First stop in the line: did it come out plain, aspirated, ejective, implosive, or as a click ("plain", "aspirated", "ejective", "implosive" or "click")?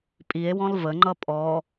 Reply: ejective